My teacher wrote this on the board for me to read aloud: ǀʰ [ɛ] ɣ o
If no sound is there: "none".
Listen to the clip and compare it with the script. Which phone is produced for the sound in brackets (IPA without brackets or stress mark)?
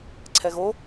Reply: ɛ